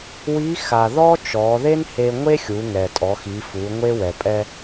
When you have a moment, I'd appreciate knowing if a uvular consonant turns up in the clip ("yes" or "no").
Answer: no